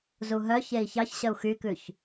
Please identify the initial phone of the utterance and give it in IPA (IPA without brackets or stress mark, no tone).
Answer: z